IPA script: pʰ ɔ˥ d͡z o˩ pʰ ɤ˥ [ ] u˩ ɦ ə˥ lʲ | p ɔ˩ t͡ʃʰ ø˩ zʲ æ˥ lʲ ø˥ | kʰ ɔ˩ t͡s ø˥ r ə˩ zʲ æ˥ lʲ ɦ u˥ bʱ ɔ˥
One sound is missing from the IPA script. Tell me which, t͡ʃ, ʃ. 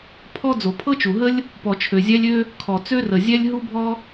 t͡ʃ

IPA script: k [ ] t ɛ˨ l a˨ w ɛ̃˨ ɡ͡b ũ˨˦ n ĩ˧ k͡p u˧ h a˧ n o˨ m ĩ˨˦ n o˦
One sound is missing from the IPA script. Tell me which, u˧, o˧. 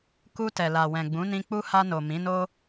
u˧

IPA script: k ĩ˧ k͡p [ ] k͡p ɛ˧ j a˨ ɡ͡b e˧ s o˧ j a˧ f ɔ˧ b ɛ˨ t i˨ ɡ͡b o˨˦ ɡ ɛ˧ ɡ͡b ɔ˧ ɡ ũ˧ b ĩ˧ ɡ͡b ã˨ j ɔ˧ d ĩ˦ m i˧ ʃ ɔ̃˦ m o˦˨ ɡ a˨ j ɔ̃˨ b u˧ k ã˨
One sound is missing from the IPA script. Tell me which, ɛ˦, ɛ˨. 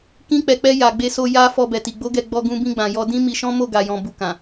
ɛ˨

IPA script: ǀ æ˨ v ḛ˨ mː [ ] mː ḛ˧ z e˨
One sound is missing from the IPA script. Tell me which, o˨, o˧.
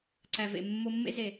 o˧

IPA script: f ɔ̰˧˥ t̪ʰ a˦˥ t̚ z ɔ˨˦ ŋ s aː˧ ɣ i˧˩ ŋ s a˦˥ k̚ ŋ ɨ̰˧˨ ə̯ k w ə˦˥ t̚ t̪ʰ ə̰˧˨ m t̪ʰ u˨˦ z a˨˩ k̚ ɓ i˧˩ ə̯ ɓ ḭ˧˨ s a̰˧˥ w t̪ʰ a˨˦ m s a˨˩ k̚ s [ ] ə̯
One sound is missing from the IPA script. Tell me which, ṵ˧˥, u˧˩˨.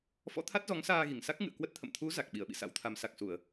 u˧˩˨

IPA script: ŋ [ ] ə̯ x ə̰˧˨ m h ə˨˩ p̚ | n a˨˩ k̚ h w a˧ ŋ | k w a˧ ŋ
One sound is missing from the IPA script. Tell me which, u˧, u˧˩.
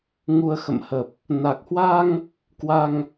u˧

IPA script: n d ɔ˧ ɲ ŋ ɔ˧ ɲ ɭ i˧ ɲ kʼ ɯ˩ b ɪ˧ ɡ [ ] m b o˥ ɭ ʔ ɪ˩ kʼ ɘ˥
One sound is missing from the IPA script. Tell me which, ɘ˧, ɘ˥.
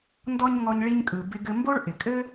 ɘ˧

